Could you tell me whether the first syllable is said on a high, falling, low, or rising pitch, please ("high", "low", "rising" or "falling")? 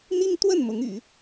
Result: high